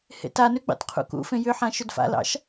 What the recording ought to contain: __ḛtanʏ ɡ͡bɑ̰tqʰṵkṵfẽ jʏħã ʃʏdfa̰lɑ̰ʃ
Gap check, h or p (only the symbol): h